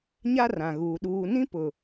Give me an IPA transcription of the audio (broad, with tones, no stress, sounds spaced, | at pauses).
ɲ a˦ r ã˨ ɣ uː˨ ɗ uː˨ n ĩ˦ p ʊ˨